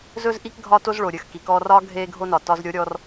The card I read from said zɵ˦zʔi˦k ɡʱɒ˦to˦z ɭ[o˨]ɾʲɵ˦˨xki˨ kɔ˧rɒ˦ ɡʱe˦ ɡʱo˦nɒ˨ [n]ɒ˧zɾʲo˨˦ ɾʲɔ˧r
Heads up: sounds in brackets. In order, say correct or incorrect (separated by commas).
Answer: correct, incorrect